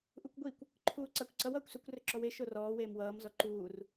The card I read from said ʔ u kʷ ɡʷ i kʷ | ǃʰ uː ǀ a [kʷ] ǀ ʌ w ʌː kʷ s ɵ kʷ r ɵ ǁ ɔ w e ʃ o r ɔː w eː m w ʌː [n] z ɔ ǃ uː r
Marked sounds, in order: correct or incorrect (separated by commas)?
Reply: correct, incorrect